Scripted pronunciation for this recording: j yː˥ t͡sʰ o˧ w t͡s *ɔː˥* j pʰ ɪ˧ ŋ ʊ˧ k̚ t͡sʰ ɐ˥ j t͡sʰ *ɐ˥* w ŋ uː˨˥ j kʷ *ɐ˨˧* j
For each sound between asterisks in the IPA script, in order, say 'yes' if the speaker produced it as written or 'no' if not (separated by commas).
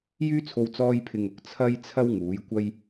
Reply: yes, yes, no